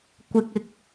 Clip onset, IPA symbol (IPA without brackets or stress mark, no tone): kʷ